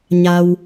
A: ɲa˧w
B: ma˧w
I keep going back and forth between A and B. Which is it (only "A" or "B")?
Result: A